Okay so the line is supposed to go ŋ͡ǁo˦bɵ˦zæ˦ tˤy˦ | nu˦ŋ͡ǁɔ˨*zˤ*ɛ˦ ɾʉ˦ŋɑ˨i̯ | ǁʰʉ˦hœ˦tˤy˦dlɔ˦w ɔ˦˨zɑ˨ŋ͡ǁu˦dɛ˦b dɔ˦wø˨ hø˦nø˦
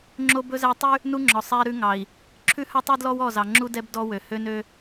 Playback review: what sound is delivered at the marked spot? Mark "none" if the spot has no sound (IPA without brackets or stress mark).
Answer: sˤ